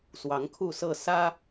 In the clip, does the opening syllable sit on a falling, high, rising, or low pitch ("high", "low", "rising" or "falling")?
rising